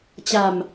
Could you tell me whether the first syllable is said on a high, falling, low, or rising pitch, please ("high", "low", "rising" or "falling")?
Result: low